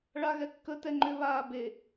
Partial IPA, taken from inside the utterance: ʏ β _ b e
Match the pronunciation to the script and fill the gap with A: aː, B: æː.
A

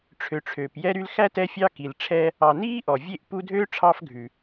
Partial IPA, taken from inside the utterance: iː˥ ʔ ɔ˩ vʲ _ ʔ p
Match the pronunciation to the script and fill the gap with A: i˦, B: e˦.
B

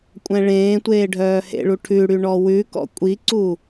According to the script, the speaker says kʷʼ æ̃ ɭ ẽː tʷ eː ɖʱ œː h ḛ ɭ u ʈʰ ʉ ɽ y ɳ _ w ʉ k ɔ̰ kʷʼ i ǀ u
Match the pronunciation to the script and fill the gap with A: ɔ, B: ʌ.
A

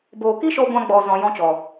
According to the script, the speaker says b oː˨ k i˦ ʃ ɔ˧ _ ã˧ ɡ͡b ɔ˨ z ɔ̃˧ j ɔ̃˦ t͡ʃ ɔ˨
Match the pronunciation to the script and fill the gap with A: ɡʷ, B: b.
A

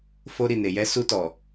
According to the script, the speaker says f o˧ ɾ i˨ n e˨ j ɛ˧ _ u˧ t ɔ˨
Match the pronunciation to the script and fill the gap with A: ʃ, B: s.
B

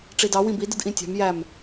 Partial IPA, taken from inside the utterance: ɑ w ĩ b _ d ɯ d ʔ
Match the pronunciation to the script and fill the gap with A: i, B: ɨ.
A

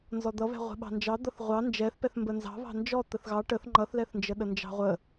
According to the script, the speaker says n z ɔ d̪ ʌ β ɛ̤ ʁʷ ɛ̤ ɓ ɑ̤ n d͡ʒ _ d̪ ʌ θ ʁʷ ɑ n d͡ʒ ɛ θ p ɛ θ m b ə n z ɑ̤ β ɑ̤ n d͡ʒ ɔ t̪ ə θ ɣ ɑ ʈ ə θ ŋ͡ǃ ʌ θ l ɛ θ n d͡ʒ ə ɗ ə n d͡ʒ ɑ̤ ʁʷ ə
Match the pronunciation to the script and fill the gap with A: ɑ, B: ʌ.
A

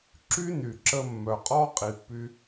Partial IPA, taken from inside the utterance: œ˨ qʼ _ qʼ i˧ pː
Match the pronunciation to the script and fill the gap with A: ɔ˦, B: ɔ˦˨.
A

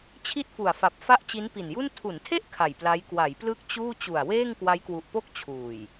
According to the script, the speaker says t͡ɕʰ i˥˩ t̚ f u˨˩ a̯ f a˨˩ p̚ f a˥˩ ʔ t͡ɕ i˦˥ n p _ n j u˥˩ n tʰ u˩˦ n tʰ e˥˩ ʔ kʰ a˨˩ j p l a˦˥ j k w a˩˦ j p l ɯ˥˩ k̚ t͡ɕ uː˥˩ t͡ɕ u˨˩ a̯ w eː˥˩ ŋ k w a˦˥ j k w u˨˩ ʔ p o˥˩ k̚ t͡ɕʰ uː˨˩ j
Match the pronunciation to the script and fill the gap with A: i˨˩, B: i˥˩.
A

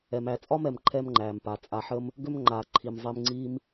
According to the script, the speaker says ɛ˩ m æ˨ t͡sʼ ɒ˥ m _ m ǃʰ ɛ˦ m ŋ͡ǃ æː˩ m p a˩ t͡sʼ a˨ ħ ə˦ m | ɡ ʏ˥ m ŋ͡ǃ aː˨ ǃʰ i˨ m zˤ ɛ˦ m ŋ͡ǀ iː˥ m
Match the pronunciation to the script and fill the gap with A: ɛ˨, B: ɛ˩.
B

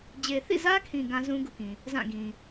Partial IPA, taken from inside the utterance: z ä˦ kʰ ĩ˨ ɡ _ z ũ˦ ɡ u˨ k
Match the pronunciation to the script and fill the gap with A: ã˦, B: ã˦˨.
A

